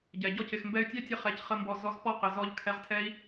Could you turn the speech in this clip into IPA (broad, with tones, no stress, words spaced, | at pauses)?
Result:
ɟɛ˨ɟɔ˦c ɪ˨xmbɛ˧y̯tʲɛ˦tʲə˧ χɛ˨˦c χə˦mbɔ˧ zɔ˧z pɔ˦qɪ˨zɔ˧ʎ kʰɛ˧ʁtʰɛ˦i̯